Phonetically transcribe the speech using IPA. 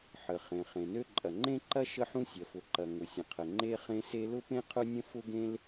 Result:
ħ ə˩ χ ẽ˩ χ ẽ˩ n ø˥ ǃʼ ɐ˩ ŋ͡ǃ ẽ˥ ǃ ɐ˥ ʃ ə˥ ħ ũ˥ sʲ ɐ˩ f ʊ˩ ǃ ɐ˩ ŋ ʊ˩ sʲ ə̃˩ qʰ ə˩ ŋ͡ǃ e˥ χ ẽ˥ s e˥ l ʊ˥ p ẽ˥ qʰ ʊ˥ nʲ ə̃˥ f ʊ˥ ɡ ẽ˥ l

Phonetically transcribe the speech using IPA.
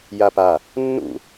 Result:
j a p a | nː ṵ

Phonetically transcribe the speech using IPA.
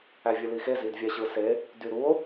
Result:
æ vʲ ɯ l i x e z i d vʲ æ ɕ ɯ s e | d y ɾ u o̯

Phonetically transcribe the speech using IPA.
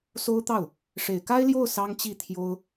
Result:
s o˥ ʊ̯ t̪ ɑ˥˩ ʊ̯ | ʂ e˨˩ ɪ̯ k a˥ ɪ̯ l j o˥˩ ʊ̯ s ɑ˥ ŋ t͡ɕ i˥˩ t̪ʰ j o˥ ʊ̯

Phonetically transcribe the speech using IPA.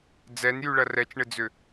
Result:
d͡z ɛ n j y ɭ ɐ r ɛ t͡ʃ ɳ ɪ d͡z ʏ

